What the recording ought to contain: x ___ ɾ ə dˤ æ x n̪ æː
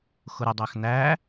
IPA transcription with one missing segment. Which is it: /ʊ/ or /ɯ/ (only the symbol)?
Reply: ʊ